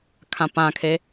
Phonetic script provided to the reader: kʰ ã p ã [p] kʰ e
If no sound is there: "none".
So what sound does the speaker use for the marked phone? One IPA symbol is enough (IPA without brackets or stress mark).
none